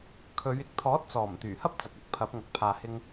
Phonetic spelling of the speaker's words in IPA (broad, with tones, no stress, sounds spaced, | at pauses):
kʰ ɵ˨˧ ɥ ɪ˨˥ k̚ t̪ʰ ɔː˨˥ t̚ t͡s ɔː˨˩ m t̪ yː˨˩ h ɐ˥ p̚ t͡s ɐ˨ k̚ ɐ˥ k̚ pʰ ɐ˨˥ p̚ ŋ ɐ˨ k̚ pʰ aː˨ h ɪ˧ ŋ